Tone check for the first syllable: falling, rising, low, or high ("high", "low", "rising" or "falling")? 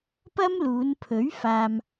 high